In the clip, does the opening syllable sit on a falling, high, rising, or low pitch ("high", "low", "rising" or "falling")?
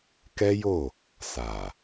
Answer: high